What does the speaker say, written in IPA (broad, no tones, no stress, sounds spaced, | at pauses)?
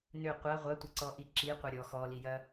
n ʏ qʷ ɐ ʁʷ ɐ tʷ ɪ ǀ ɔ ʔ i ǁ i qʷ ɪ ɾʲ ɔ x ɔ l i j ɐ